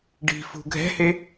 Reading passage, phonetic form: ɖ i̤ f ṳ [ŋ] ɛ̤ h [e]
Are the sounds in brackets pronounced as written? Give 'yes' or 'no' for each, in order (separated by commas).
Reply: no, yes